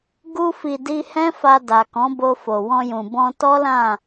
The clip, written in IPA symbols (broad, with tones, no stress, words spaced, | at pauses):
ɡu˧fi˨ di˧hɛ̃˦fa˧ da˨kɔ̃˨˦bo˧fo˨ wɔ̃˧jũ˨ bɔ̃˧tɔ˦lã˦˨